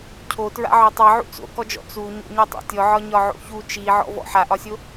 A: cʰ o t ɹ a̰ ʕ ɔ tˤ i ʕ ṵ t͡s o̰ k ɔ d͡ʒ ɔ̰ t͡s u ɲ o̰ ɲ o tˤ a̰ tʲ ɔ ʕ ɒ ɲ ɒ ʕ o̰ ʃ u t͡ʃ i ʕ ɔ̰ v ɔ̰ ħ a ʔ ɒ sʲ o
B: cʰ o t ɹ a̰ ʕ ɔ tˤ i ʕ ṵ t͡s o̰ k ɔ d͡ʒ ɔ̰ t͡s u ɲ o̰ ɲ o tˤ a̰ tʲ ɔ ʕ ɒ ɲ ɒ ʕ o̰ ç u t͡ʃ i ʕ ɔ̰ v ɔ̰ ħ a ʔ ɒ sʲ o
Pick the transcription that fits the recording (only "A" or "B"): B